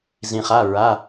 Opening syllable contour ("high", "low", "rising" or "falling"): low